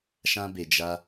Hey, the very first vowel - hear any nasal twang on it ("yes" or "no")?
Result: yes